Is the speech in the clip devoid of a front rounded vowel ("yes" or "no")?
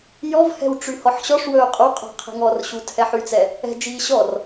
no